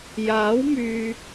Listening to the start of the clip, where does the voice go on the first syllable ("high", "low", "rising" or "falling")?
rising